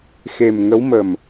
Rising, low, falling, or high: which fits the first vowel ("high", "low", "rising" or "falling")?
low